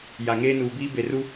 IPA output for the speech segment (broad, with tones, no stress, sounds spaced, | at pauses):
j a˨ ŋ eː˦ n uː˨ b iː˦ b e˨ r u˦